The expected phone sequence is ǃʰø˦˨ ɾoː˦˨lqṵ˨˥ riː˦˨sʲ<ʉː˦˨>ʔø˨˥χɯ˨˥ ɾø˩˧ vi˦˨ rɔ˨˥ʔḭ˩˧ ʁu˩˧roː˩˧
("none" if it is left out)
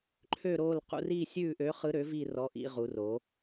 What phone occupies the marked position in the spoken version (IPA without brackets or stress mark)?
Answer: ʉː˦˨